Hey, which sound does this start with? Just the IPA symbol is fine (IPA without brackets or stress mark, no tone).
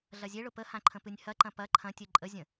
ɮ